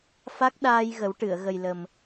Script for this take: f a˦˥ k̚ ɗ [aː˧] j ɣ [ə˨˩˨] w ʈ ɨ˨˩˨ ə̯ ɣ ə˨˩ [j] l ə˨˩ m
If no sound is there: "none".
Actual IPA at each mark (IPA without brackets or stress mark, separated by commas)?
aː˧, ə˨˩˦, j